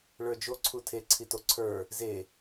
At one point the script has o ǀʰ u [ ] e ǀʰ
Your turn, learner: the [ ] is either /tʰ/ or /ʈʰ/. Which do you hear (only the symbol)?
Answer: tʰ